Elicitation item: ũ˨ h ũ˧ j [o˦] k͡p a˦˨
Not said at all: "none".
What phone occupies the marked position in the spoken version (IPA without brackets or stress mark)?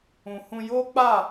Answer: o˦